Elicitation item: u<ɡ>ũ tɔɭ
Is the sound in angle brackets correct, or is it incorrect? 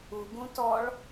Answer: correct